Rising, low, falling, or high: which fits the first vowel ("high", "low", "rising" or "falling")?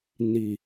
low